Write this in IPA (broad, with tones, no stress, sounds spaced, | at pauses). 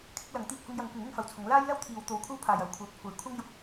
kʰ ɪ˥ k̚ l ɐ˨˥ ŋ t̪ iː˧ k̚ h ʊ˧ ŋ j ɐ˨˧ ŋ kʷ ɪ˨˥ ŋ ɪ˧ ŋ f ɐ˨˧ w t͡sʰ ʊ˨˥ ŋ l aː˥ j l ɐ˥ w t̪ʰ iː˨˧ w t̪ o˨˧ w kʷʰ ɐ˥ w pʰ aː˨ j ɐ˨˩ w kʷʰ œː˨˥ p̚ kʷʰ ɐ˨˧ j kʷʰ ɐ˥ ŋ j ʊ˨˥ k̚